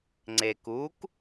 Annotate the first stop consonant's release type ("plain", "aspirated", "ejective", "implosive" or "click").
click